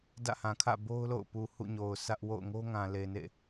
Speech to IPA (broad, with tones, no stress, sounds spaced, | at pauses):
d ä̰˦˨ h ã˨ kʰ ä̰˦˨ b o˦ ʊ̯ l o̰˦˨ ʊ̯ p u˨ h ṵ˦˨ ɲ o˨ ʊ̯ s ä˦ ʔ w o̰˦˨ ʊ̯ ŋ o˦ ŋ ã˨ l e˨ n ḛ˦˨